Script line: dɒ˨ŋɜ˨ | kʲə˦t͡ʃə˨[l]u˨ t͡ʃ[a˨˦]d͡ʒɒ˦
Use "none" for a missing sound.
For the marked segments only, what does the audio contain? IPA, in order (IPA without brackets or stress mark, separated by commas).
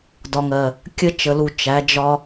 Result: l, æ˨˦